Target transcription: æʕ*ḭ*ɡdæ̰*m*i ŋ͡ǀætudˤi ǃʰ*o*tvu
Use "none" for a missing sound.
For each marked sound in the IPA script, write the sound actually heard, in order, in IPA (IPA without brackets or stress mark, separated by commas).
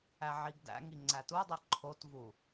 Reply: i, ŋ, o